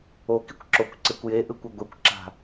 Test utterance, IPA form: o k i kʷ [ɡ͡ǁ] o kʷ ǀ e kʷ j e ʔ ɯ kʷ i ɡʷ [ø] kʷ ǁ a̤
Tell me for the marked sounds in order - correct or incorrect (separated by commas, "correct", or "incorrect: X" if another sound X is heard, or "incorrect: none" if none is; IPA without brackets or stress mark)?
incorrect: ǁ, incorrect: e